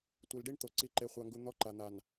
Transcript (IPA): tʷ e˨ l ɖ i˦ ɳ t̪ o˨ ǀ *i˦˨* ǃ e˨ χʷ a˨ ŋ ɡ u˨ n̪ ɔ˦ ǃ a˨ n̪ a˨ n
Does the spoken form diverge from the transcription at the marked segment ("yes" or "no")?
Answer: yes